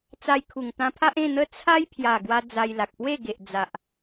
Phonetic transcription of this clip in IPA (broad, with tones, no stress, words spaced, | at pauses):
t͡sa˧jkʰu˨˩ŋ t̪ã˧pʰa˦ʔẽ˥˧n̪ə˦ t͡sʰa˦jpʰja˨˩ ɡwa˧ d͡za˧jla˨k̚ pwe˥˧ɡe˨ʔ d͡za˨ʔ